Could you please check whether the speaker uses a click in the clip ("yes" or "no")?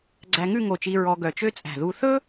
yes